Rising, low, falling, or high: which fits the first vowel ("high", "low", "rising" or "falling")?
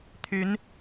rising